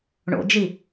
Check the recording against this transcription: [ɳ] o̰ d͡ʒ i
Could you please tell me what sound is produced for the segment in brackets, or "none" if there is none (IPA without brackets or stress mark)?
ɳ